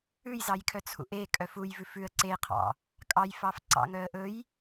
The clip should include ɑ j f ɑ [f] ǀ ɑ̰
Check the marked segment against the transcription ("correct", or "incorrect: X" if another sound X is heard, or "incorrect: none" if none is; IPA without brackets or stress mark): correct